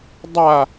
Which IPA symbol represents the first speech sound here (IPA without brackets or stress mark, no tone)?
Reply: dˤ